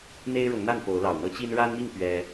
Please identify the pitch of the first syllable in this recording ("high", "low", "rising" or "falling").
high